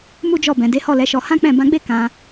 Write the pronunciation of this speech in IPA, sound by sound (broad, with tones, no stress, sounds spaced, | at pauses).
m u˦ d͡ʒ ɔ˦˨ b ɛ̃˨ d e˨˦ h ɔ˦˨ l ɛ˨˦ ʃ ɔ˧ h ã˦ k͡p ɛ̃˦˨ b ã˧ ɡ͡b e˦ k ã˧